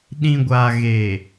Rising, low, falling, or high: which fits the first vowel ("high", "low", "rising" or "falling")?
low